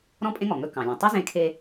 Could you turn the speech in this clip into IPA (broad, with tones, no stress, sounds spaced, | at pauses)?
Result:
ɾ ɔ̃˥ pʼ ẽ˥ ŋ ɔ˩ ŋ ɵ˧ k ɑ̃˩ lʲ ɔ̃˩ tˤ ɵ˥ z ẽ˧ kʰ e˧